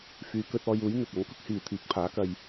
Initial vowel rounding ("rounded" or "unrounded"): rounded